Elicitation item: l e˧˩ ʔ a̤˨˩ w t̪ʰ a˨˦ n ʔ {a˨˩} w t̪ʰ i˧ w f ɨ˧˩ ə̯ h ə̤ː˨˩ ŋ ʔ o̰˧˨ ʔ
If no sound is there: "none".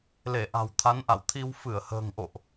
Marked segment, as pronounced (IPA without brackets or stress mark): a̰˧˨